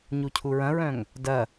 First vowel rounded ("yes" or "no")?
yes